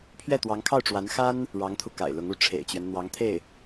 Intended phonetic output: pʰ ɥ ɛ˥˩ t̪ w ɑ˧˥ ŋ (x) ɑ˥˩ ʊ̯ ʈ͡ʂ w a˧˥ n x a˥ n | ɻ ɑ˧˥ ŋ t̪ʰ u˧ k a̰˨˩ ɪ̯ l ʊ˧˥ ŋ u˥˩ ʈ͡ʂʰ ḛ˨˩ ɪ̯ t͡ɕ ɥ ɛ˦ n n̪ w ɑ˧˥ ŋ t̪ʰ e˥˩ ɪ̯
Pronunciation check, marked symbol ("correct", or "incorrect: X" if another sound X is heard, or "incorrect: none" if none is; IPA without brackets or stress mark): incorrect: kʰ